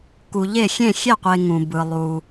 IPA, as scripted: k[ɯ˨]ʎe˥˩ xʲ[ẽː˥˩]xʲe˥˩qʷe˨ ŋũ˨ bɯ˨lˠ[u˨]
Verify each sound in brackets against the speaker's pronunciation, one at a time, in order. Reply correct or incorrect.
incorrect: u˨, incorrect: ẽ˥˩, correct

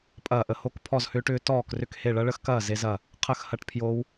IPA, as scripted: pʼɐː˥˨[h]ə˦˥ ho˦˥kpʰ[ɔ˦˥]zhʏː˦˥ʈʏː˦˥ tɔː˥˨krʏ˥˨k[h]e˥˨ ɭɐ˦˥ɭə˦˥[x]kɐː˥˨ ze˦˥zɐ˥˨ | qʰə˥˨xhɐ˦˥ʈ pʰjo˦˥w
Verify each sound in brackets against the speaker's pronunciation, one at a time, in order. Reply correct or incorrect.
incorrect: ʔ, incorrect: ɔ˥˨, correct, correct

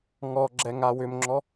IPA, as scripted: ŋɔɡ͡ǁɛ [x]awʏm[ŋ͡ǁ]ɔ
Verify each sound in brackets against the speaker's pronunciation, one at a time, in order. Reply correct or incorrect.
incorrect: ŋ, correct

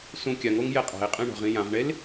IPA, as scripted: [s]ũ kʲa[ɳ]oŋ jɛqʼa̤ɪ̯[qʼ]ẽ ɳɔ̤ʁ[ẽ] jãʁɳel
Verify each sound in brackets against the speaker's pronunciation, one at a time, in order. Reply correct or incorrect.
correct, incorrect: ŋ, correct, incorrect: ĩ

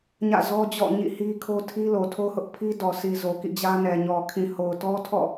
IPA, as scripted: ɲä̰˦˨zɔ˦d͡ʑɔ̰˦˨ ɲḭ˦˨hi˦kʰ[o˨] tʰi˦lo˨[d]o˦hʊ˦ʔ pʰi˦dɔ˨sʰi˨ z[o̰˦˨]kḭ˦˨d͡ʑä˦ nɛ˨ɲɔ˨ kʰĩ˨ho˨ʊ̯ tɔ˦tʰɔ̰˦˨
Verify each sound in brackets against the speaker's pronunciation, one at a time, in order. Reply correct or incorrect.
incorrect: o˦, incorrect: tʰ, incorrect: o˨

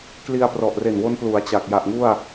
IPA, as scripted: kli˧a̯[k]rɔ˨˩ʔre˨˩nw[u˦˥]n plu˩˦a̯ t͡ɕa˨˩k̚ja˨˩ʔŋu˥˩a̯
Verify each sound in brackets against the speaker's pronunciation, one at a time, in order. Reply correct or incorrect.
incorrect: p, incorrect: o˦˥

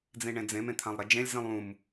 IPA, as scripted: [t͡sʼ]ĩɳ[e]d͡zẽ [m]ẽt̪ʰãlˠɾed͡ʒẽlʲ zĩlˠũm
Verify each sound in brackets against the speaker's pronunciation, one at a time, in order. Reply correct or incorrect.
incorrect: d͡z, incorrect: ẽ, correct

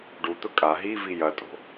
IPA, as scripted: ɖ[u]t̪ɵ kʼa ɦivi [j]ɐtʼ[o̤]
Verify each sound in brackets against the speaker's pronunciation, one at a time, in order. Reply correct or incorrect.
correct, correct, correct

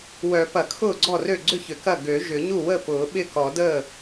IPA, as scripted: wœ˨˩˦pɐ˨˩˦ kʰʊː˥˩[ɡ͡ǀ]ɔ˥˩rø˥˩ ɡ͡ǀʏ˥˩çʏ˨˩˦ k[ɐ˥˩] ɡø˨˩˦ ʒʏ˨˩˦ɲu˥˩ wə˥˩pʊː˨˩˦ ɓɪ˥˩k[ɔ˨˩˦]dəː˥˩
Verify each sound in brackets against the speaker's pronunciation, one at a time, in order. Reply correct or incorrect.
correct, correct, correct

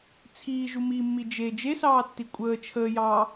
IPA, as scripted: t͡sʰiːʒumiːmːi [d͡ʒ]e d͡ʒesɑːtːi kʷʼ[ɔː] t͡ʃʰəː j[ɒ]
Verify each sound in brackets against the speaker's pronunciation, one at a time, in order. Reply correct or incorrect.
correct, incorrect: əː, incorrect: ɑ

